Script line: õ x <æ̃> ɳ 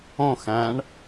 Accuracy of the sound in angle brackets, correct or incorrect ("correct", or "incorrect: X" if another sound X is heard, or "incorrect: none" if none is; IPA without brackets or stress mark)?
correct